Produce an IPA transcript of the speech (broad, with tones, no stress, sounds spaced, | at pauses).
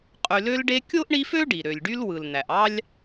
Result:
qʼ y˨ l ø˦ l ɖ e˦ kʲ o˥ ʔ ɳ i˦ f ø˥ ɖ i˩ ɾ ø˩ lʲ ɖ y˦ l w ɯ˩ l n̪ æ˩ ʔ ɑ˥ lʲ